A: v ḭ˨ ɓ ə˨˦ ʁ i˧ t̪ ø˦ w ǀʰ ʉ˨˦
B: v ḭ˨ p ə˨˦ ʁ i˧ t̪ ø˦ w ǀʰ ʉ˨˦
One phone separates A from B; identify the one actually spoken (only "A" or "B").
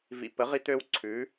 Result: B